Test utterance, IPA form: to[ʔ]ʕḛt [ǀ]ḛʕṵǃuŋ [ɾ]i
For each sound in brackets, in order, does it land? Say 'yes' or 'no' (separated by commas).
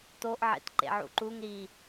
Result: yes, no, yes